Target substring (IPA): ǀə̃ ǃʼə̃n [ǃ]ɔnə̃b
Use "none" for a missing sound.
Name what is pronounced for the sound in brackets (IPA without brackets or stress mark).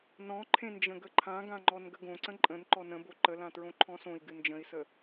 ǃ